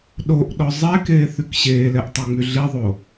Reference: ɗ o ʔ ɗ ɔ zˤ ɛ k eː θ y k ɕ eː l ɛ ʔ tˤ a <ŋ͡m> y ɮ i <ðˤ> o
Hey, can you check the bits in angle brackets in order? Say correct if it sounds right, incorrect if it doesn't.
correct, correct

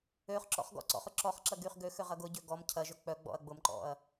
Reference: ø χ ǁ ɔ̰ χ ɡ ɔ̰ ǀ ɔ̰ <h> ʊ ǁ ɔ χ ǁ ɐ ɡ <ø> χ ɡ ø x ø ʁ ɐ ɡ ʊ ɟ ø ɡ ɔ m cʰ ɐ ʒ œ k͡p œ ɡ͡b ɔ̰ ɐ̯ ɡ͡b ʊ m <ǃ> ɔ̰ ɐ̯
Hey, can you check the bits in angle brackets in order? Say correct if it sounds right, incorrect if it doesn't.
incorrect, incorrect, correct

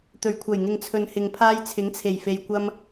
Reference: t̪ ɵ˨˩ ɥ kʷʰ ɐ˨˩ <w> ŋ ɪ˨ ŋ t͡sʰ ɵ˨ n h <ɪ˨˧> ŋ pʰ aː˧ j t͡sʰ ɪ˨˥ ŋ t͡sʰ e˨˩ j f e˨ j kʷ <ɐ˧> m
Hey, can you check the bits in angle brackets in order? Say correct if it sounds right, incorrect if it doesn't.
incorrect, incorrect, correct

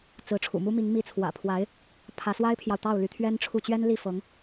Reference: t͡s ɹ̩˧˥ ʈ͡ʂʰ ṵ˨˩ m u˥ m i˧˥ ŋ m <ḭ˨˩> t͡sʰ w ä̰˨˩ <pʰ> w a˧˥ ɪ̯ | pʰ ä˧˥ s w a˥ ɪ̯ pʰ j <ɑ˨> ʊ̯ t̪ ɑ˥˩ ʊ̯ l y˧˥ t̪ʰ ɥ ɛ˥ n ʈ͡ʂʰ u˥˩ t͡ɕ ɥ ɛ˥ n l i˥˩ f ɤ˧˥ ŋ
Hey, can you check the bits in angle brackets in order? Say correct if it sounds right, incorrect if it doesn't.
incorrect, correct, correct

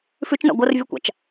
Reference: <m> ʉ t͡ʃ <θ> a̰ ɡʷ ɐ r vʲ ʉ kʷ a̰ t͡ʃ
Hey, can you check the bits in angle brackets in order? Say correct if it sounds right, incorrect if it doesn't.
incorrect, incorrect

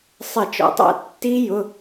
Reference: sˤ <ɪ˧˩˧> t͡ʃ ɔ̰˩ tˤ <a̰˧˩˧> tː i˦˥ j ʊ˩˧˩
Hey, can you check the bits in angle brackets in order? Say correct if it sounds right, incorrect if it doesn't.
correct, correct

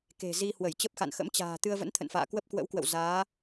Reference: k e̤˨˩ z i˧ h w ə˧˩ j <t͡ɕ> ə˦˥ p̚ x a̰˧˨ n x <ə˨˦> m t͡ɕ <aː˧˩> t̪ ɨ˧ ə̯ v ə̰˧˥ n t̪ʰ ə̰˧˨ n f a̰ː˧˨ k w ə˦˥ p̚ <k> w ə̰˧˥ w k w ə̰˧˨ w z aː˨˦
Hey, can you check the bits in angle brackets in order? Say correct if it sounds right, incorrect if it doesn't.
correct, incorrect, incorrect, correct

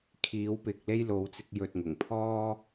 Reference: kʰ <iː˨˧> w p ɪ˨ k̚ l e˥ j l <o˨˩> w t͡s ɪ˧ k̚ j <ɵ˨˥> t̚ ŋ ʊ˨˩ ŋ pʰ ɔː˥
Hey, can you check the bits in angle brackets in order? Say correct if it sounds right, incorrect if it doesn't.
correct, incorrect, incorrect

